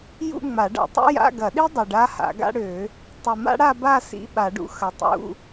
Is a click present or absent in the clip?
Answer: absent